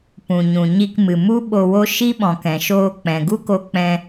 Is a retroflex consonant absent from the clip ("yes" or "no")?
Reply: yes